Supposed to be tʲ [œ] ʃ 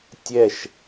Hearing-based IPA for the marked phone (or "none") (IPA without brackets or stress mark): ɛ